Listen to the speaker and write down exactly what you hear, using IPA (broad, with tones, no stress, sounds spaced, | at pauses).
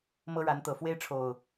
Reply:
m ɤ˦ ɻ a˨˦ n t̪ ɤ˨˩ f w e˦ ɪ̯ ʈ͡ʂʰ o˨˩ ʊ̯